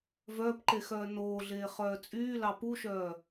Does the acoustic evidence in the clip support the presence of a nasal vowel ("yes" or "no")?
no